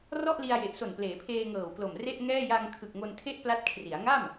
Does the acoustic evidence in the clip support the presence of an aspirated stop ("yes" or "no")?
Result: yes